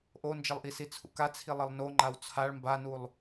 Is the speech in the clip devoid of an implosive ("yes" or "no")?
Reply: yes